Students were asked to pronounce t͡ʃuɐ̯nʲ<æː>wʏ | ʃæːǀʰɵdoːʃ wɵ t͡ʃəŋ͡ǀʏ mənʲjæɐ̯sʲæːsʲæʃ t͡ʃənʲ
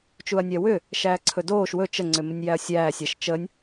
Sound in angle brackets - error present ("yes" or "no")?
yes